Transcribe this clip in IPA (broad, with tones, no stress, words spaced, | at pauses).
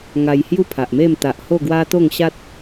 ŋa˧jhju˥˧pʰa˨ʔme˥˧m t̪a˨ʔho˥˧ɡwa˦ t̪o˥˧ŋɕa˦t̚